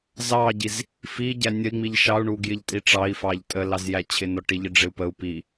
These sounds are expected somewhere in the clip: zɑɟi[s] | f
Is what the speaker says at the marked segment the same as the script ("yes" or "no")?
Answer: no